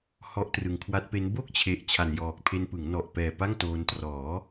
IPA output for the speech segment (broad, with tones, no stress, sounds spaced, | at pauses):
h ɔ˦˥ ʔ t r ɯ˨˩ ŋ kʰ w a˦˥ t̚ p e˦˥ n b o˥˩ k̚ t͡ɕʰ e˨˩ ʔ t͡ɕʰ a˨˩ n j ɔː˨˩ k̚ pʰ e˧ n p ɯ˩˦ ŋ n ɔ˨˩ ʔ p ɛː˨˩ p a˥˩ ŋ t oː˧ n t r ɔː˩˦